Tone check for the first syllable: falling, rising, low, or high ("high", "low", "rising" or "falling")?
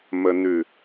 low